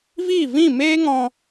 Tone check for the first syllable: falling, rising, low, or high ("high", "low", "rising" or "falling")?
falling